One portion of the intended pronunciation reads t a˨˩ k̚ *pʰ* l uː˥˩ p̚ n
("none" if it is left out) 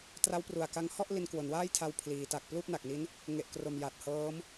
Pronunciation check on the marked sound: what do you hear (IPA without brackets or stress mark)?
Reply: p